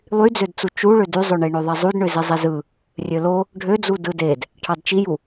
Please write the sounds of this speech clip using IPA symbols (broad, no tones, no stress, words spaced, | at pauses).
lˠyd͡zødt͡su t͡ʃuɭø dyzˤøɳe ɳøðˤizˤudɳø zizˤizɯ | rʲølo | ɖʱød͡zu dɯded | ʈʰɑdt͡ʃiju